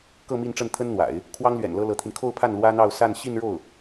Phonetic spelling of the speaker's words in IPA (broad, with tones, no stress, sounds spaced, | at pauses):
k ɤ˥˧ m i˥˧ n ʈ͡ʂ ə˥˩ n t̪ʰ ə˥ n n̪ w a̰˨˩˦ ɪ̯ | kʰ w ɑ˥ ŋ l ɥ ɛ̰˨˩ n l ɤ˥ l ɤ˧˥ t̪ʰ i˧ n kʰ o˥˧ ʊ̯ pʰ a˥˩ n l w ä˥ n̪ ɑ˥˧ ʊ̯ s a˥˧ n ɕ i˥˧ n ɻ o˥˩ ʊ̯